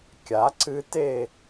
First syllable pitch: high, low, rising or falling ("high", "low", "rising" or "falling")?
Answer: rising